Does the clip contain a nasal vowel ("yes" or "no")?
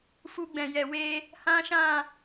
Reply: yes